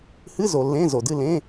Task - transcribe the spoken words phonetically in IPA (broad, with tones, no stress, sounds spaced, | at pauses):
h ɨ˧˥˧ z o˨ lː ẽ˧˥˧ z o˨ d ɨ˥˧ l ẽ˧˥˧